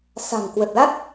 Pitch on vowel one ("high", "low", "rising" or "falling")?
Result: low